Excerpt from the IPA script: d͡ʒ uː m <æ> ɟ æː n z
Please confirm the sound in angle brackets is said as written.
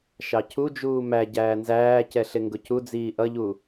yes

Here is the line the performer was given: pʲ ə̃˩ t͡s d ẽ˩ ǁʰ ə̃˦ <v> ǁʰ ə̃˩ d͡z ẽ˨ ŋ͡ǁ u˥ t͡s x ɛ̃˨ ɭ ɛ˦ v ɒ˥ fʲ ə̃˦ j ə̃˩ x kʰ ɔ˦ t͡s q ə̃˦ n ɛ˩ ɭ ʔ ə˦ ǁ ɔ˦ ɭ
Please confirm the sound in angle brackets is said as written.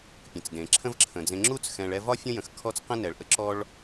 yes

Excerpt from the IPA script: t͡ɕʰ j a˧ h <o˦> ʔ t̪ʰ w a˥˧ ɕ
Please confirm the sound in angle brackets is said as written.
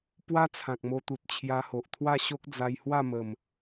no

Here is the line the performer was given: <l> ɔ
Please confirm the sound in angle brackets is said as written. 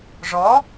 no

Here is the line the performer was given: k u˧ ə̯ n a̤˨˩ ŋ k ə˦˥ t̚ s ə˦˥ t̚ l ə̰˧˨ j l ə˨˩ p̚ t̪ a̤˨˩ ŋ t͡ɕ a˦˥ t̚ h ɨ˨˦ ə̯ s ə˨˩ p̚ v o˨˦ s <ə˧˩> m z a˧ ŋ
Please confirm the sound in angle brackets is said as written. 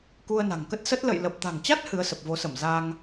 yes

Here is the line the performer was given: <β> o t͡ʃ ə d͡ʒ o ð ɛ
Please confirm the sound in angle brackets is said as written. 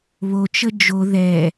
yes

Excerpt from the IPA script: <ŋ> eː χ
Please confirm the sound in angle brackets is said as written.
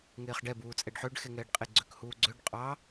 yes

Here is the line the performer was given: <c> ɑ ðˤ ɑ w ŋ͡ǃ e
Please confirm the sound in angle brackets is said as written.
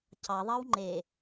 yes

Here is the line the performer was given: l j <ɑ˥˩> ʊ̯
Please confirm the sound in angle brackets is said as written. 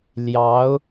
no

